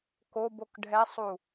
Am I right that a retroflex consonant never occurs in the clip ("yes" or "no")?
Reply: no